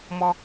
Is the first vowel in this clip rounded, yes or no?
yes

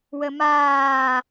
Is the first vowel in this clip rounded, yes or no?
no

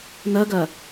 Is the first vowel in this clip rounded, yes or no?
no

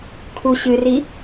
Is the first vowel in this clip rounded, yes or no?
yes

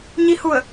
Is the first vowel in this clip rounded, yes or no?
no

